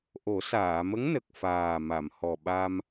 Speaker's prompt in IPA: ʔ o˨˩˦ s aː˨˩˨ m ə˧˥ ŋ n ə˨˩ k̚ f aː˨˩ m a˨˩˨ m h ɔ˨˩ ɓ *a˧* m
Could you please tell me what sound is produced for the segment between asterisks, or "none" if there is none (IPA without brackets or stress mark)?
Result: a˧